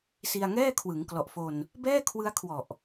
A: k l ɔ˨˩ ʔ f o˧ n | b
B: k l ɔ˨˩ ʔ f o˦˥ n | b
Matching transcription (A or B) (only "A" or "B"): A